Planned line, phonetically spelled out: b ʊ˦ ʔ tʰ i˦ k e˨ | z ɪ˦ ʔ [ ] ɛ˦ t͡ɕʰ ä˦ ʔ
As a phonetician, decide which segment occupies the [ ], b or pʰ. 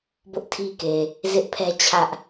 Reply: pʰ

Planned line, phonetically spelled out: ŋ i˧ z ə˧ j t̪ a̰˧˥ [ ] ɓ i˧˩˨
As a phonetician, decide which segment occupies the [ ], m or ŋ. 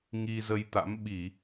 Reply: m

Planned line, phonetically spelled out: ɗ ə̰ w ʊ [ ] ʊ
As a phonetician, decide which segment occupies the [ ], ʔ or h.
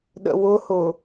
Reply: h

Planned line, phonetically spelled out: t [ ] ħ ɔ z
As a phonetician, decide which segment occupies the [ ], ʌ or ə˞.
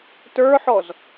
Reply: ə˞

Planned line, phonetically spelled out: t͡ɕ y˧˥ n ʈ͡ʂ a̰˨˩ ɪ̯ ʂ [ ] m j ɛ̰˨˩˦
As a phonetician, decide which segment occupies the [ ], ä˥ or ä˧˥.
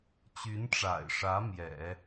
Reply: ä˧˥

